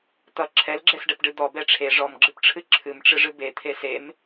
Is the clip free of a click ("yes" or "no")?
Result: no